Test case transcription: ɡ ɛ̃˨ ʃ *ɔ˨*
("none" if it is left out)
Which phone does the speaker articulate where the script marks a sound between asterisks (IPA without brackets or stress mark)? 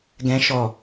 ɔ˨